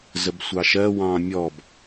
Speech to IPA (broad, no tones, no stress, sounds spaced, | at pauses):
z ə b sʷ ɑ ʃ ɜ w ɑ̃ mʲ ɔ b